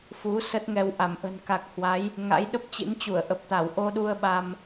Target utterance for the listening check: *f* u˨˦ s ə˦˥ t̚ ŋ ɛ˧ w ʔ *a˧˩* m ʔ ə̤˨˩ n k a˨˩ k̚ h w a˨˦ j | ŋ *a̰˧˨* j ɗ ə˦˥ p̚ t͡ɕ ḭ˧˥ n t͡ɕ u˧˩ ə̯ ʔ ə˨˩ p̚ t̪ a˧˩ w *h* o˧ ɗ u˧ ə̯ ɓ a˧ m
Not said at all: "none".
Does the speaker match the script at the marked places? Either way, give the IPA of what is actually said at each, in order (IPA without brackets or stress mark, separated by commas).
f, a˧˩, a̰˧˥, ʔ